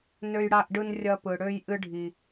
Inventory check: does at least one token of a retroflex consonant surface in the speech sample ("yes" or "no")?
yes